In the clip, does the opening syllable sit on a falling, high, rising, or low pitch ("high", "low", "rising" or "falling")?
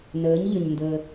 rising